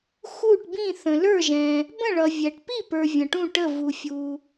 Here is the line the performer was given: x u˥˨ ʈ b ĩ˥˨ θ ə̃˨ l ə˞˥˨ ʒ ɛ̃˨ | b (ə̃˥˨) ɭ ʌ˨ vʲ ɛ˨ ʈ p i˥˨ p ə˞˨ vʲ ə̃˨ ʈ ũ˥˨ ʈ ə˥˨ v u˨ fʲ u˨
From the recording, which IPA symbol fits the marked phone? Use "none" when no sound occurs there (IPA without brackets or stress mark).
ə̃˥˨